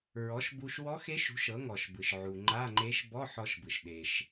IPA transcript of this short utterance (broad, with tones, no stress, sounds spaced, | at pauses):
ɹ ɔ˩˥ ʃ b u˧ ʃ w ɔ˧˥ x e˧˥ ʃ ṳ˩˥ ʃ ɤ˩˥ ŋ ɔ˩ ʃ b ɯ˩ ʃ ʕ u˩ ŋ͡ǃ a˧˥˧ ŋ͡ǃ e˧˥ ʃ b ɔ˧˥˧ ħ ɔ˧ ʃ b ɯ˩ ʃ ɗ e˩ ʃ